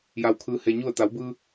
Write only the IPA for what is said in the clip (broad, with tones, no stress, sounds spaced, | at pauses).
j a˧ w kʰ ɯː˧ h e˧ ɲ u˥˨ ə̯ t̪ a˩˧ w b ɯː˧